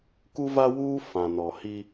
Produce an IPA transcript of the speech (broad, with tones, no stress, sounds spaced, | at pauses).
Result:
k u˦ v a˦ w uː˦ f ã˨ n ɔ˨ h i˦